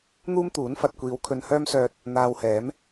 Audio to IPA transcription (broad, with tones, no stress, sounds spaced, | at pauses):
n̪ uː˥ m t̪ uː˨˥ n f ɐ˨ t̚ kʷ iː˨˧ w kʰ ɵ˧ n h œː˥ m s œː˧ t̚ | n̪ aː˧ w h ɛː˨˥ m